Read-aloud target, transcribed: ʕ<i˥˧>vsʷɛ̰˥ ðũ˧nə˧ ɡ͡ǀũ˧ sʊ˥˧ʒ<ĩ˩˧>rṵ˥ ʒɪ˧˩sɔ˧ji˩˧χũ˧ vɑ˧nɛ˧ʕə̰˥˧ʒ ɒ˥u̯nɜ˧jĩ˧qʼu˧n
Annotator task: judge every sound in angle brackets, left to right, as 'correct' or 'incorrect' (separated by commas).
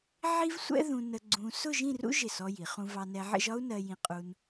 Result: incorrect, incorrect